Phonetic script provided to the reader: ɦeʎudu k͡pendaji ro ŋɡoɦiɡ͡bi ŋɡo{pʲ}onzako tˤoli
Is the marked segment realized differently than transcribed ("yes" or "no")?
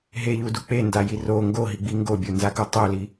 yes